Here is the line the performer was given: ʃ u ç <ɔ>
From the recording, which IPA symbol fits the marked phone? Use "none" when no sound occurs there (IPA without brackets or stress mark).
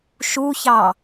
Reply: ɑ